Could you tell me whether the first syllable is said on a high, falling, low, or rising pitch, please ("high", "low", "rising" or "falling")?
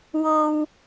low